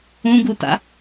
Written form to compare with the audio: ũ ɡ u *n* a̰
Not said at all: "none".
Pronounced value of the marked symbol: t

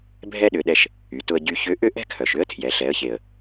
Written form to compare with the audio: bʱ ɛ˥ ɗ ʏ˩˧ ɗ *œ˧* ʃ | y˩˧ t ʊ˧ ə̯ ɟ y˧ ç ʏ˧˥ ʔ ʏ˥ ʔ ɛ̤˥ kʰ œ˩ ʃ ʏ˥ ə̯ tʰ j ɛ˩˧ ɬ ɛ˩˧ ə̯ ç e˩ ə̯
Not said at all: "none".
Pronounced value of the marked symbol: ɛ˧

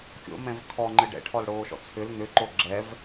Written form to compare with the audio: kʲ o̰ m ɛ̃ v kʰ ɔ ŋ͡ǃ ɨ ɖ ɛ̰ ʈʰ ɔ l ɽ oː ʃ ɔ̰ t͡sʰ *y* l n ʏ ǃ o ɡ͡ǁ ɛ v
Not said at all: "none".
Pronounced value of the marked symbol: ʏ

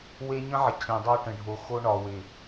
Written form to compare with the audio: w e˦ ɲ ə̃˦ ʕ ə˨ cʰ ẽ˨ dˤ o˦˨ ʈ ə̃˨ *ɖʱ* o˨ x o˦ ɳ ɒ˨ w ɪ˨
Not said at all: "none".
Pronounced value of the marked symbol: ɖʱ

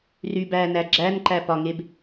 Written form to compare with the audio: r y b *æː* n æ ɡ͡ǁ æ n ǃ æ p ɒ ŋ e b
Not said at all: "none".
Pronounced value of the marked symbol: æː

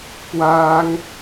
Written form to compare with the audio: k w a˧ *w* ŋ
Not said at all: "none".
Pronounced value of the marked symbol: none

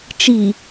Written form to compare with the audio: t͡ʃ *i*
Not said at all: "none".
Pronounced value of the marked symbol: i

